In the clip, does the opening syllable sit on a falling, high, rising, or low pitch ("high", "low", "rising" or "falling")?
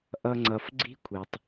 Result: low